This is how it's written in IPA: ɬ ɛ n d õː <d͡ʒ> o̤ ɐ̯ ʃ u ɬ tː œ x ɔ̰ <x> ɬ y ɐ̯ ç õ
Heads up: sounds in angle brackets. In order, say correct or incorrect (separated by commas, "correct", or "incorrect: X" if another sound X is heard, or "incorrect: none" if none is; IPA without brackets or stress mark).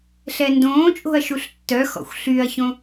incorrect: t͡ʃʼ, incorrect: xʷ